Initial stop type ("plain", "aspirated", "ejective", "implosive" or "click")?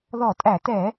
ejective